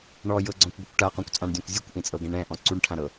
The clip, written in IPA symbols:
ɳ ɔ j ɤ ɡ͡ǀ ɔ̃ kʷ ɡʷ ɯ kʷ ʈ a q õ kʷ t͡sʼ ã ɳ dʲ õ kʷ zʲ ɯ kʷ ʔ ĩ t͡sʼ ɤ ɡ ɛ̃ ɳ ɛ̃ ʔ ɔ̃ ǀ u ɳ ʈʰ ã ɾ ɤ

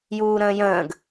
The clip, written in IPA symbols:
j uː ɾ ə̃ː j ə̃ː ɡ

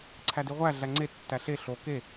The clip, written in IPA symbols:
ǀʰ æ d i ʁʷ æ ɮ æ ŋ͡ǀ e tː æ ɬ e ɬ o k e

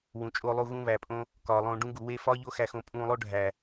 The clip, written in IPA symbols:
w ũ˨ t͡ʃʼ o˧ lˠ u˧ ɣ ũ˧ β æ˨ pʼ õ˧ | k ɒː˨ lˠ õː˧ ɖ ũ˦ ɡ u˨ w e˦ f ɒː˦ ʎ o˦ x æ˧ x õ˧ pʼ ũː˧ lˠ o˦ ɖʱ æ˨

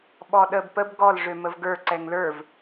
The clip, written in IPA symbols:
ɓ ɔ ɗ ə b p ə b ɡ ɔ l ʐ ø m ə v ɡ ə˞ ǀ ɛ ŋ l ə˞ v

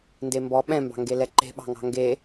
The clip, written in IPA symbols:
n d e m b ɔ ɓ ɛ̃ m b ɑ̤ ŋ ɡ e l ɛ ǃ e̤ ɓ ɑ̤ ŋ ɑ̤ ŋ ɡ e

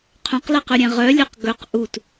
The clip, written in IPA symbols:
qʰ œ̃ q l ɛ q ɵ ɾʲ ɛ̃ ʁ œ lʲ œ q ɡ ɵ q ʔ u t

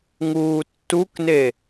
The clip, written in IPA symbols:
ŋ uː tː u k n e

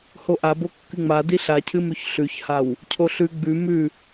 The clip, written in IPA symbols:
h o ʔ a b o kː ɨ ŋ͡m a d i ɬ a cʰ ɨ m ʉ ç ɬ ʉ ç h a w | cʰ o ɬ ʉ ɡ͡b ʉ m ʉ

